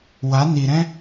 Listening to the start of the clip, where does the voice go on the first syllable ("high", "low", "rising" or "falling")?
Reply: rising